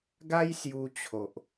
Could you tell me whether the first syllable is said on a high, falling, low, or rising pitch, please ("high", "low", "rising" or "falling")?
high